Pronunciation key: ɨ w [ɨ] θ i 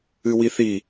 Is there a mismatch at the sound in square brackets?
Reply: yes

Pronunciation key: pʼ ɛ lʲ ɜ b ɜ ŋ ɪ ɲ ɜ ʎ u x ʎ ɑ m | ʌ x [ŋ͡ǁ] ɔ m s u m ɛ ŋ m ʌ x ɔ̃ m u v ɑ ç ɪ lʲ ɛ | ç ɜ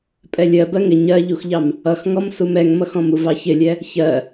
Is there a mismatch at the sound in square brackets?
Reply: yes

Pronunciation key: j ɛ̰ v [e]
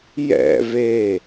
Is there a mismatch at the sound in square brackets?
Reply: no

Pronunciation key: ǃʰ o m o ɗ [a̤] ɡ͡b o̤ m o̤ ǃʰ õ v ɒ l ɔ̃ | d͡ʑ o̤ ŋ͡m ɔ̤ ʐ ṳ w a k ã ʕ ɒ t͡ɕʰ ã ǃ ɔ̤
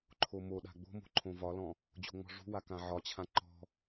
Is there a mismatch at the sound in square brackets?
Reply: no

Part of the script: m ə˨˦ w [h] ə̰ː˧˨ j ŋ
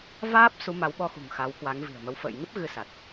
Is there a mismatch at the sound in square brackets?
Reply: yes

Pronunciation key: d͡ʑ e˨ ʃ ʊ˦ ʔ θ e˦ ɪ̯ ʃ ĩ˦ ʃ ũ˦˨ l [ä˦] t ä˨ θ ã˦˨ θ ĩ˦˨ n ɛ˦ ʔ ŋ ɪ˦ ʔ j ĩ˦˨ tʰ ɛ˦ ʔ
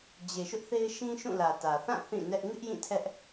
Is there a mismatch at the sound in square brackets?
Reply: yes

